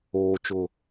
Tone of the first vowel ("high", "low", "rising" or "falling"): low